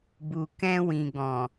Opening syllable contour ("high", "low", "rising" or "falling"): low